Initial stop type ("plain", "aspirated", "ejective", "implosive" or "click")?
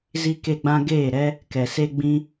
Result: plain